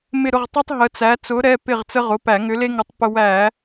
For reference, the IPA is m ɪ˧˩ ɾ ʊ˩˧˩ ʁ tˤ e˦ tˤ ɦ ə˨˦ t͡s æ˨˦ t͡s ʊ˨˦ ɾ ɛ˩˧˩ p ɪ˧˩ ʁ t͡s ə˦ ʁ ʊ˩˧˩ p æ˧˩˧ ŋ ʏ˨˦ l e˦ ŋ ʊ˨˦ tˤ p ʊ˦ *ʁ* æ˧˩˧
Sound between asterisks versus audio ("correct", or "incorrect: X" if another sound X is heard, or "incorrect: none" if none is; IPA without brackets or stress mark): incorrect: w